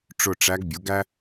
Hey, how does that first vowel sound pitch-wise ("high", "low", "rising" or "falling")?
falling